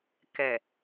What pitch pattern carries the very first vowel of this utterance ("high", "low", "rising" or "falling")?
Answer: low